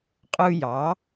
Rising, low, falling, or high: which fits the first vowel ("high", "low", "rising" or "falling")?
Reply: high